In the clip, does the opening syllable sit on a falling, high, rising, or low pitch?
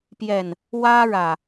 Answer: low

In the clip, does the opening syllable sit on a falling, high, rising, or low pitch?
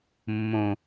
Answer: low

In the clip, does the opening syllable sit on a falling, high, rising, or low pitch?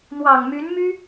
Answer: low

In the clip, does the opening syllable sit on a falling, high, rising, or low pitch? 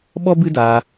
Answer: high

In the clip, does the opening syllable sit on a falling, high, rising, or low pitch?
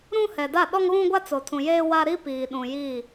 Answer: high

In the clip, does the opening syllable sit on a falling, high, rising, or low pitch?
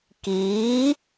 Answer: rising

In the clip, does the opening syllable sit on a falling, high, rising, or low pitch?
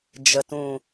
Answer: low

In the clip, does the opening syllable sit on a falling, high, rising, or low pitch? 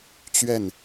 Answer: falling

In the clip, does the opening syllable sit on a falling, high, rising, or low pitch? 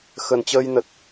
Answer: low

